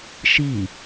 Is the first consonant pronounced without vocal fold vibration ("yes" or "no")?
yes